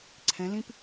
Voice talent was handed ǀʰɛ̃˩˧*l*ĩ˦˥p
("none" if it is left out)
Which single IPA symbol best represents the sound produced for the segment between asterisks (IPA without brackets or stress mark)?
l